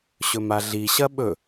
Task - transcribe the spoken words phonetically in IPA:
ɕɵmaɮiɕɐ ɓɵ

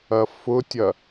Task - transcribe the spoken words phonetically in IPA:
ɐfʊtʲɐ

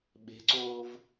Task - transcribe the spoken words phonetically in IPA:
ɓe̤ǀoːv

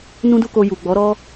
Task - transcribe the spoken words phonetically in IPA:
nũ˦du˦ko˧ ju˨ɡ͡bɔ˨˦ ɾɔ˦

